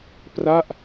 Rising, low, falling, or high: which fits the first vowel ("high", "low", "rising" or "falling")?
falling